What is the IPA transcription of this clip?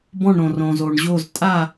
b ɔ̃˦˨ ɳ ɾ õ˩ r õ˩ z o˩ ɳ ʑ o˦˨ z tʼ a˦˨

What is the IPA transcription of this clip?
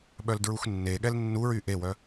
ɓ œ l d ɹ u x nː e ɠ ɛ l nː u ɹ y ʔ e w œ

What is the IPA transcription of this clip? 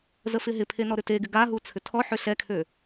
z ə f ɪ ɦ ɪ pʰ e n ɔ ɾ ʏ t e ɡ ɪ ɡ a ɦ u t͡sʰ ʏ tʰ ɔ ħ ø ɬ ɛ kʰ ø

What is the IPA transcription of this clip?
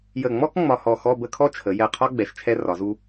j ə˧˩ ŋ͡m ɔ˥ k ŋ͡m ɒ˧ h ɔ˧˩ x ɔ˥˧ b ə˥˧ kʰ ɔ˥ t͡ʃʰ ə˩˧ j ɛ˧˩ qʰ ɒ˥ ɡ͡b ɛ˧˩ ʃ t͡ʃʰ ɛ˥ r ɒ˩˧ z u˧

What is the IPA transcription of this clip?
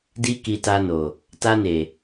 d i˦ k i˧ t a˧ n o˨ | t a˧ n e˨

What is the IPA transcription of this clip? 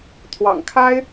t̪ʰ w ɑ̰˨˩ ŋ kʰ a˥ ɪ̯

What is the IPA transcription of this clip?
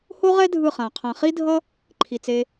h o˦ ʁ ɛ˦ dʱ ɯ˦˨ χ ã˨ qʰ ã˨ χ i˦ dʱ ʌ˦ | ǃʰ i˨ t͡s e˧

